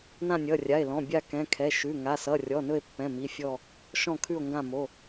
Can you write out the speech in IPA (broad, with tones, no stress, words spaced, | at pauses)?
nã˦˨nʲʌ˩˧˩rʲa˩˧˩e̯lɔ̃˩˧˩ bʲa˦˨kɛ̃˩˧˩ kʰɛ˩˧˩ ʃʉ˩˧˩ ŋa˩˧˩sʌ˩˧˩ rʲɔ˩˧˩nɵ˦˨e̯pːɛ̃˩˧˩ mi˩˧˩fʲɔ˦˨ | ʃɔ̃˦˨kʰʉ˦˨o̯ŋɡã˦˨mo˩˧˩